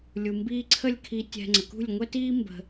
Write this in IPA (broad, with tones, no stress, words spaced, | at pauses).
lʲu˨mbiː˧ǀʰə˦˨lʲkʰi˧ tʲɛ̤˧ŋ͡ǀə˨ kṳ˦˨lʲŋʷɛ˦tiː˦ mbə̤˧